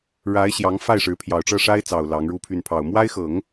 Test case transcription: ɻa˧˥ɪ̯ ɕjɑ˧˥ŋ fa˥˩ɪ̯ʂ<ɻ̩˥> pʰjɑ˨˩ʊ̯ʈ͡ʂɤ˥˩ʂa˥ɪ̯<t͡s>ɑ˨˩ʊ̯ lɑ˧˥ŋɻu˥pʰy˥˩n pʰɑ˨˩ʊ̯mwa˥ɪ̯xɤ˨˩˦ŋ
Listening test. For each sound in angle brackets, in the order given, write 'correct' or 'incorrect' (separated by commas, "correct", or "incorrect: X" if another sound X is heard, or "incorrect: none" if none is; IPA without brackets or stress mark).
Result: incorrect: ɻ̩˧˥, correct